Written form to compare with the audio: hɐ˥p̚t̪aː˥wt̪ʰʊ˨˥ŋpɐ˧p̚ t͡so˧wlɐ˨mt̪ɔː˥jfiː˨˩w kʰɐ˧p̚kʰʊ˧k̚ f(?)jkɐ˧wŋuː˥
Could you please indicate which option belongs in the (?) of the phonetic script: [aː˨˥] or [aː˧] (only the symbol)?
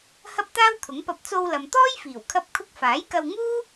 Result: aː˨˥